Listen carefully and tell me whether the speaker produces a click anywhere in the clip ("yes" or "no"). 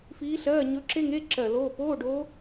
yes